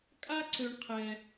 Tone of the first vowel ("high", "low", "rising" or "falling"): high